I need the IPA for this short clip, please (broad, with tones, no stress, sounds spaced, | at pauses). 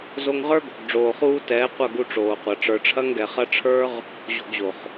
z o˧ ŋ ʁ ə˞˦ ɡ o̤˨ ɡ ɖ͡ʐ oː˨ χ uː˧ t ɛː˨˦ qʷ ɐ˦˨ ɡ u˧ ʈ͡ʂ oː˨ qʷ ɐ˨ ʈ͡ʂ ə˞˨ ʈ͡ʂʰ ɐ˦ ŋ ɡ ɛ˨ χ ɐ˦ ʈ͡ʂʰ ə˞˦ ʁ | ʑ o̤˧ ɡ ʑ o˨ χ